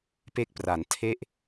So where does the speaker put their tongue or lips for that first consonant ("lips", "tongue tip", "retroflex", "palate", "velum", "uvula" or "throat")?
lips